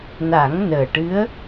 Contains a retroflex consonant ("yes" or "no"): yes